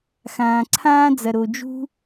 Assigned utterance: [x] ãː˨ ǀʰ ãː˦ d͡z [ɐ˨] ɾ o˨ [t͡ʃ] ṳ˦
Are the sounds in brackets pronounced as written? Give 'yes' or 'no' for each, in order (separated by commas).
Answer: yes, yes, no